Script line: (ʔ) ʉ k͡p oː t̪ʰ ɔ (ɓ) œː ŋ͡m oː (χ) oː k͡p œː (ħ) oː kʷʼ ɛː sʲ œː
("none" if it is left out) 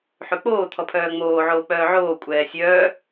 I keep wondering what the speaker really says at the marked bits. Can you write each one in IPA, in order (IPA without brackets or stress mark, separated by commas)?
ħ, pʰ, ʕ, ʕ